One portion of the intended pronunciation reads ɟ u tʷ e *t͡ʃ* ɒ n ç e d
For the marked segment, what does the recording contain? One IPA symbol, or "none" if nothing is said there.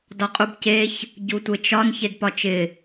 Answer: t͡ʃ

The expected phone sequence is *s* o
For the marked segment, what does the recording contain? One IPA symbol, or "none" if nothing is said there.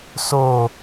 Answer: s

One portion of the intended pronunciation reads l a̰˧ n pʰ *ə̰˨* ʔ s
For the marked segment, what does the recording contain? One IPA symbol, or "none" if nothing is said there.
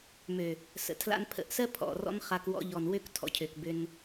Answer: ə̰˨˦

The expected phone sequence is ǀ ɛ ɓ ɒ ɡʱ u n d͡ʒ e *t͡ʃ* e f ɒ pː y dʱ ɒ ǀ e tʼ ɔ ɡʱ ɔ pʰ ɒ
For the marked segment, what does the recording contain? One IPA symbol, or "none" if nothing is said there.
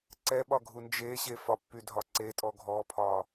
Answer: ɕ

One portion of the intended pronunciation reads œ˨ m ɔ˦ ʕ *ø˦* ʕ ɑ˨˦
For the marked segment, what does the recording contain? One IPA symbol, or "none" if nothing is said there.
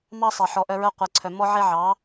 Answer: e˦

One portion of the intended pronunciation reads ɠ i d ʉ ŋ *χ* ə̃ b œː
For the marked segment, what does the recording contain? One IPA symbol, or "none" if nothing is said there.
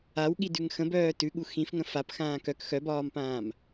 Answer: x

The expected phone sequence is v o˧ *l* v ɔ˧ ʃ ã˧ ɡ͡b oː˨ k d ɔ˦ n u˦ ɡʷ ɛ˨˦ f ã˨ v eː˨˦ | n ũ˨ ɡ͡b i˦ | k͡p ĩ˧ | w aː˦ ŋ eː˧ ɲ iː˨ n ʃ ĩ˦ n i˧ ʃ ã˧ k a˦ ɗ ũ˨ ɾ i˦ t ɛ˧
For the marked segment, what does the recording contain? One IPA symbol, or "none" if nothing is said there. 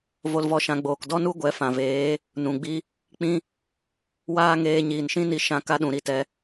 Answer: l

